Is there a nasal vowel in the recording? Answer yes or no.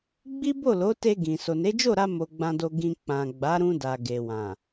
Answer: yes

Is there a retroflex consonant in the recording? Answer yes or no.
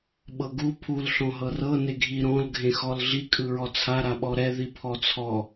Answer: no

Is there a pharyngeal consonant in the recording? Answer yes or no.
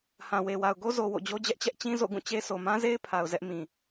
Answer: no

